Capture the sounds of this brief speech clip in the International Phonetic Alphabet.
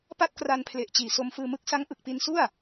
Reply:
p a˥˩ t̚ k r a˧ n pʰ l e˨˩ ʔ t͡ɕ iː˨˩ s o˧ m f ɯː˧ m ɯ˦˥ k̚ s a˦˥ ŋ ʔ ɯ˨˩ k̚ p i˧ n s u˥˩ a̯

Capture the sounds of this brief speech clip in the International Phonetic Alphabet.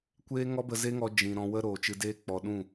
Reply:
kʷ eː˦ ŋ ɔ˦ b ə˧ z e˦ ŋ ɔ˧ d͡ʒ ĩ˨ ɾ ɔ̃˧ w ə˦ ɾ oː˨ t͡ʃ ɨ˧ d eː˦ k͡p ɔ˨ ɗ ũ˦˨

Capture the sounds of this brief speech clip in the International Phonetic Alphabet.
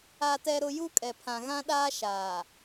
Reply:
a˦ t ɛ˦ ɾ ʊ˦ j u˦ kʼ ɛ˨ pʰ ã˨ ɣ ã˦ ɗ aː˦ ʃ aː˨

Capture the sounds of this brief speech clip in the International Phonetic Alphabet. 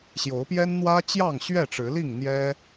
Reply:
ɕ j o˨˦ ʊ̯ p j ɛ˦ n n̪ w ä˦ t͡ɕ j ɑ˥˨ ŋ ɕ ɥ ɛ˥˨ ʈ͡ʂ ɻ̩˨˦ l i˥˨ ŋ n̪ j ɛ˦

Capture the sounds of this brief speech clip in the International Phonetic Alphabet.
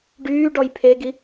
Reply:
ɖ yː ɖ ɔ j pʰ e ɡ i

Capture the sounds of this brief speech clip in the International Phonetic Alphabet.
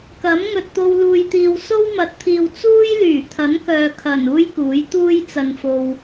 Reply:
k ɐ˨˥ m ŋ ɵ˨ t̚ t̪ o˧ w l uː˨ j t̪ iː˨ w s o˥ w m ɐ˨˥ t̚ t̪ʰ iː˨ w t͡s uː˥ j l yː˨˩ t̪ʰ ɐ˨˥ n k œː˨ kʰ ɐ˨˩ n uː˥ j k uː˨˥ j t̪ uː˥ j t͡s ɐ˨ n f o˨ w

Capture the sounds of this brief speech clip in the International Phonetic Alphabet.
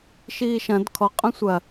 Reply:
ʃ iː ʃ ɐ̃ d kʰ ɔ qʼ œ̃ sʷ ɐ

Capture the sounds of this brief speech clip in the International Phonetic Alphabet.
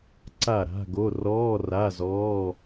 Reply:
ǀ a˥˩ ɾ a̤˧˥˧ ɡ o˧˥˧ r ɔː˧˥˧ r a˧˥˧ z ɔː˧˥˧

